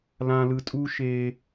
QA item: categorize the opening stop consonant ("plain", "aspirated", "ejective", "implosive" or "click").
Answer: ejective